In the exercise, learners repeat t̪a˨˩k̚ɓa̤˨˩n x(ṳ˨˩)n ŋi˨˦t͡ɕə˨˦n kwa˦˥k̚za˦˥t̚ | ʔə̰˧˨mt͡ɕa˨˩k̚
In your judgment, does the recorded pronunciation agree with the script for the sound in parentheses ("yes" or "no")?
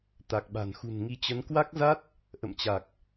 yes